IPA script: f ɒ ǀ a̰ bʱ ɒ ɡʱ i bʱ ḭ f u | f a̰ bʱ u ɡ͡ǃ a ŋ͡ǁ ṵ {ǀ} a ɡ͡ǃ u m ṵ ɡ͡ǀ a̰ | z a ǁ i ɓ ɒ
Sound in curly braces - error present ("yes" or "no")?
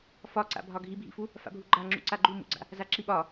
no